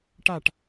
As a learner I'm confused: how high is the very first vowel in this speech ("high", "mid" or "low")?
low